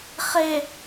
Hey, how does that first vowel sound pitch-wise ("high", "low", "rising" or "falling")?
low